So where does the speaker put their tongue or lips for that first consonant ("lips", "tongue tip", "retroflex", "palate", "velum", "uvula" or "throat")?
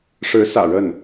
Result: retroflex